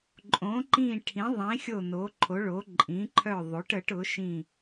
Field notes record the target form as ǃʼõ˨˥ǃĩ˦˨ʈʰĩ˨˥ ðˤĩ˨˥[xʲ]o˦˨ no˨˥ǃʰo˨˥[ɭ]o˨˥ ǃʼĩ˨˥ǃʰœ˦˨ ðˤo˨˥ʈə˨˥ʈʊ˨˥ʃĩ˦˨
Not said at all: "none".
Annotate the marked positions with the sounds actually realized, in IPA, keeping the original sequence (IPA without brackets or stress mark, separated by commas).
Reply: xʲ, ɭ